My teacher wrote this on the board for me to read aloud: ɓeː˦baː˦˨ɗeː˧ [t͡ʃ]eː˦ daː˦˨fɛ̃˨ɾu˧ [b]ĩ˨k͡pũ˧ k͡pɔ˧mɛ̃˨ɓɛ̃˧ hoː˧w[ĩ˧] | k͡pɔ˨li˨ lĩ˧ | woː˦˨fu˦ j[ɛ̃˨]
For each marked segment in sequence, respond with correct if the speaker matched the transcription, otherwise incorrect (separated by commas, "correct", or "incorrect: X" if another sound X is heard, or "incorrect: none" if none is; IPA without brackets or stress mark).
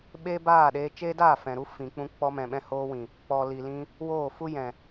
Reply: correct, incorrect: f, incorrect: ĩ˨, correct